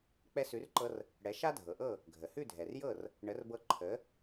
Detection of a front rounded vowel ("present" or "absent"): absent